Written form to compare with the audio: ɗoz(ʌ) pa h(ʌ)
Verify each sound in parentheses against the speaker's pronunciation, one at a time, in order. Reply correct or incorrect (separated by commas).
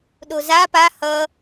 incorrect, correct